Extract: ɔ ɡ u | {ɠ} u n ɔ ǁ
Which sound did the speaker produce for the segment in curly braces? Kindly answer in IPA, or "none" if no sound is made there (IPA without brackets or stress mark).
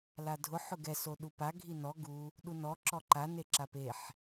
ɗ